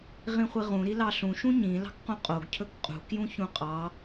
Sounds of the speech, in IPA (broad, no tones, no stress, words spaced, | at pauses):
ʁĩχʷiʁũ ɾilɑɬũ ʃũɲĩ lɑ̤kqũqʼoɡ cʰɵkqʼṳ kjũçũqʼɑ